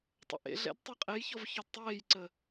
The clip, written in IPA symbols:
tˤə̰ʔḛɮɛ̰d tˤɤqʼejçɔv çɔdtˤeːjǀə

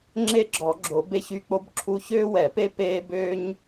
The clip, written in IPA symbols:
ŋ͡ǁe˦ɡ͡ǁɔ˨˩˦ɡ͡ǁo˨˩˦ be˦çy˦k͡po˦bǁʰu˦ çøː˦wɛ˨˩˦pe˦ peː˦bøː˦ɲ

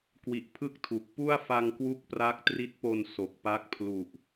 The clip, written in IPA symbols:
kwi˨˩ʔ pʰɯ˥˩k̚tʰu˨˩k̚ pu˥˩a̯fa˧ŋkwu˦˥k̚ pra˦˥k̚tri˦˥t̚po˧n so˨˩k̚pa˦˥k̚ pʰlu˨˩ʔ

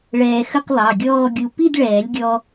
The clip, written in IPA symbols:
ɭɛː˧xə˥˧qlˠɑ˩˧˩ɡʲɔː˥˧ ɡʲu˧ pi˥˧dɭɛː˨˩˦lʲɡʲɔ˧

